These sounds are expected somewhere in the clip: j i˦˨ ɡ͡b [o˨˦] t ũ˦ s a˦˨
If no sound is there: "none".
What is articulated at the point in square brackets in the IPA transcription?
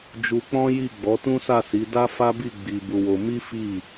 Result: ɔ˨˦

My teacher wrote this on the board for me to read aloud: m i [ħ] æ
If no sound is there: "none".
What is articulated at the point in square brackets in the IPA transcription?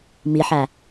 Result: ħ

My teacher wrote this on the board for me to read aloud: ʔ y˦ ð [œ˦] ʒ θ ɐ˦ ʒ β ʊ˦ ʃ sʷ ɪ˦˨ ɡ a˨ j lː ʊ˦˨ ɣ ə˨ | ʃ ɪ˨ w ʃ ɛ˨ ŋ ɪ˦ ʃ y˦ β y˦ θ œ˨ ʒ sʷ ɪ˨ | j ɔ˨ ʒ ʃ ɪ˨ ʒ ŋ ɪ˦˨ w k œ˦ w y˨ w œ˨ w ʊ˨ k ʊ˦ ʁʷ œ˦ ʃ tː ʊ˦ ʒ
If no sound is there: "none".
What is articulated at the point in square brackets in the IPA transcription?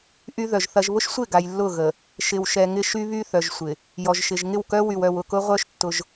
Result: œ˨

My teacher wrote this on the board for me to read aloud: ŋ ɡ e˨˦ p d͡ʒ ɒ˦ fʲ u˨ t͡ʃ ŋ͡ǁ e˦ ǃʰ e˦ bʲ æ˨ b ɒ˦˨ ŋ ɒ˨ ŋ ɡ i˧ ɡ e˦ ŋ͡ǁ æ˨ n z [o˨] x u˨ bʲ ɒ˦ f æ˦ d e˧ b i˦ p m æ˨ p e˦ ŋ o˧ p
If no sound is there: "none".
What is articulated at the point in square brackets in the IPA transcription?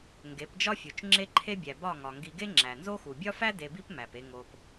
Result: o˦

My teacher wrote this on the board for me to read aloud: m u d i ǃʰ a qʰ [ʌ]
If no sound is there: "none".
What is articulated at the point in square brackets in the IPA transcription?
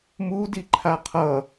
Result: ʌ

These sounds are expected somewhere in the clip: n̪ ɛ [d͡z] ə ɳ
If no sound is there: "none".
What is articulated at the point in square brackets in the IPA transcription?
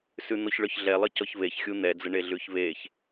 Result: d͡z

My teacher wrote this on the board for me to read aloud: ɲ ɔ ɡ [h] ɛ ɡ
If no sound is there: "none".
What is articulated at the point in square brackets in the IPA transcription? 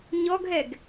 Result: ɦ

